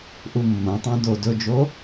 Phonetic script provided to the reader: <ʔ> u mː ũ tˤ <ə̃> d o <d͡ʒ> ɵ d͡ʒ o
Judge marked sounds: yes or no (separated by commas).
yes, no, no